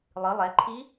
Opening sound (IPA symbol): lˠ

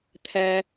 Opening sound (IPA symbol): t̪ʰ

